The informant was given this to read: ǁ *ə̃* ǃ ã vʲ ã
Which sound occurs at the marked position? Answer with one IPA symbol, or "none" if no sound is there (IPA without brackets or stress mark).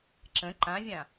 ə̃